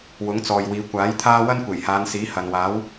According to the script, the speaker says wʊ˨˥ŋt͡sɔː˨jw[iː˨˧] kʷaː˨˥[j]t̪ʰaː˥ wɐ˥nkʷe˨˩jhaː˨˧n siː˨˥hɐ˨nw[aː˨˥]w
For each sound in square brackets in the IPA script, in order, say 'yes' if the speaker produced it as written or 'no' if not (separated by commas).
yes, yes, yes